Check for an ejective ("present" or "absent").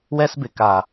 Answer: absent